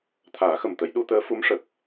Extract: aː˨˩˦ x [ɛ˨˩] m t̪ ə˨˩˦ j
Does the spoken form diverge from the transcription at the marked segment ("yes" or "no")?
yes